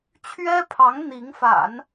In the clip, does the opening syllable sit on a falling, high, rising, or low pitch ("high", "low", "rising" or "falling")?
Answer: high